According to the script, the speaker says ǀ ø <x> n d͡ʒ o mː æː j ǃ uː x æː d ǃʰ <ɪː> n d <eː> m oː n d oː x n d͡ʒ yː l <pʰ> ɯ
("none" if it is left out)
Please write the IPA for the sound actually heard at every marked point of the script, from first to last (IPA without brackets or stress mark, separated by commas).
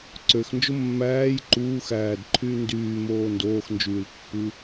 x, yː, yː, pː